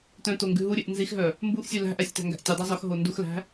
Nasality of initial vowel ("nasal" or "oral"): nasal